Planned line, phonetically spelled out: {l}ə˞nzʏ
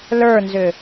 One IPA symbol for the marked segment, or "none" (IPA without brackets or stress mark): l